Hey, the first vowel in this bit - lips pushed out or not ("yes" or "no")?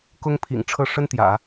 yes